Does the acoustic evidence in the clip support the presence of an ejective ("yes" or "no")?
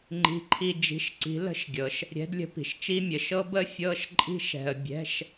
yes